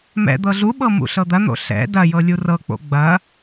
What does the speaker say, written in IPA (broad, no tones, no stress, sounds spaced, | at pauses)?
m ɛ̰ d̪ ɤ ɮ u ɓ ɤ m ṵ ɬ ɤ d̪ ɐ n̪ o̰ ɬ ɛ̰ d ɐ j ɤ lʲ u r ɤ k͡p o̰ ɡ͡b ɐ